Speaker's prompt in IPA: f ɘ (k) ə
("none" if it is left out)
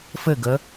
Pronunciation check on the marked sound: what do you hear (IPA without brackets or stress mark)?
ɡ